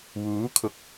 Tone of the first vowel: rising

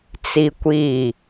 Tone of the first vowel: high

